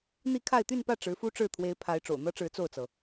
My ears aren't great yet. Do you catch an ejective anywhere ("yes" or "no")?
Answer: no